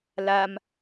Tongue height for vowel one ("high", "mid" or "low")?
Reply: low